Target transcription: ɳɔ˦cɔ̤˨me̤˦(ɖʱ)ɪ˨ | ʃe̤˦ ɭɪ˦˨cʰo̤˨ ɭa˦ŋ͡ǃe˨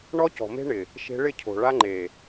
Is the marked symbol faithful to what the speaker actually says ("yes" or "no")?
no